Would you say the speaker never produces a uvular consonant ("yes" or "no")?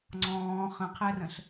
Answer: no